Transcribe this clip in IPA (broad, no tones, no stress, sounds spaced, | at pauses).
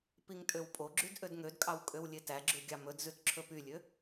p i ŋ tʼ ø w pʼ o ɡ͡ǁ y d ʔ ø d ŋ ø d kʼ ɑ w kʼ ø w lʲ e t æ ɡ͡ǁ ʉ ɡʲ ɑ m ɵ d z ʉ t ǁʰ ɵ p y lʲ ø